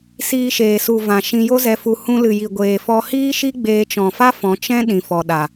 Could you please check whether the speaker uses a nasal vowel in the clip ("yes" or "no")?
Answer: yes